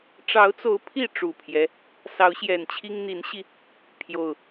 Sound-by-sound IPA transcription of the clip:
ʈ͡ʂɑ˨˦ʊ̯t͡so˨˦ʊ̯ pʰi˥˨ ʈ͡ʂu˨˩pʰjɛ˦ | sɑ˨˦ʊ̯ɕjɛ˨˩nt͡ɕʰi˦ŋ n̪i˨˦nɕi˧ | pʰjo˨˩ʊ̯

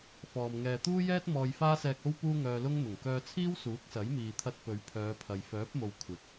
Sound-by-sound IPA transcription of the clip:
fɔː˨m ŋɛː˨t̪uː˥jɛː˥t̚ mɔː˧jfaː˥sɛː˧k̚ o˥w puː˥ŋœː˧lʊ˥ŋn̪ʊ˨˩ŋ kœː˧t͡sʰiː˥w suː˨˥k̚sɐ˨˥jmiː˨t̪ʰɐ˧t̚ pɵ˨˧ɥpʰœː˨˧pʰɐ˨j fœː˨˥p̚mo˨w kʷʰɪ˨˥k̚

